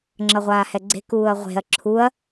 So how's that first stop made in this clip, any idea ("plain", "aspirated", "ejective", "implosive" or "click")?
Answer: click